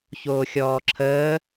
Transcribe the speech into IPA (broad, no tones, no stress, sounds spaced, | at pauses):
ç oː xʲ ɔː ǁʰ əː